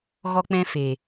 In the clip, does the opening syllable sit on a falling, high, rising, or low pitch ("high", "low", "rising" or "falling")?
high